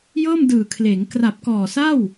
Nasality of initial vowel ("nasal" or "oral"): oral